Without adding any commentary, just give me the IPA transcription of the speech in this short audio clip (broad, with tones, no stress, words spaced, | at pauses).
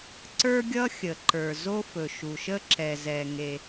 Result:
ǀə˞˥ɡʲʌ˥xʲə˩ǃə˞˩ zo˥fɵ˩ʃu˩ʃə˥ ǁɛ˩zɛ˩ŋe˩